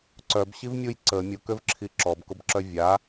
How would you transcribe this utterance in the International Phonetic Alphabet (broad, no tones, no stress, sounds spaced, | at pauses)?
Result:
ǀ œ b ɕ i v mʲ u j ǀ ə mʲ ʊ k ø v ǁʰ i ǁ ɔ b k ʊ b ǁ œ vʲ a